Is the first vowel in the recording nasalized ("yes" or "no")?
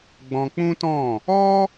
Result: yes